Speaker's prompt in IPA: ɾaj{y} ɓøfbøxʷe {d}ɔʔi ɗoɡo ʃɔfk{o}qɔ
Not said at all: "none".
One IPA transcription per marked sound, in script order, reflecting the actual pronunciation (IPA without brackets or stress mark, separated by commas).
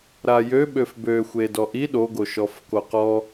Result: ø, d, o